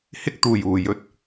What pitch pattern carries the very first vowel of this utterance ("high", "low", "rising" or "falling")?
high